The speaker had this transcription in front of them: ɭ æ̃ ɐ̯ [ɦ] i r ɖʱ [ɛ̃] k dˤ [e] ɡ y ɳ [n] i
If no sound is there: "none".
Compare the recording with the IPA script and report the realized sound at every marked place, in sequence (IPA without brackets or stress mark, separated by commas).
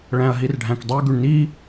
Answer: ɦ, æ̃, y, n